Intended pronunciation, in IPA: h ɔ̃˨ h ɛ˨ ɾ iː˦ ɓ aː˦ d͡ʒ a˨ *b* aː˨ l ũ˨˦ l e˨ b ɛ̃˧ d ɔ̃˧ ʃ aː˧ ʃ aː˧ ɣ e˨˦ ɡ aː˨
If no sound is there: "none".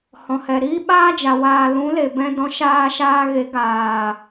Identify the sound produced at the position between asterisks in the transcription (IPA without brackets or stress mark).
w